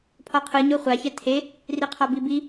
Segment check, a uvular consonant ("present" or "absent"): present